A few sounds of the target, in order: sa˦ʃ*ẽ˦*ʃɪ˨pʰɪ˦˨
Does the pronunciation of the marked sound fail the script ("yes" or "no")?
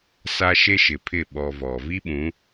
yes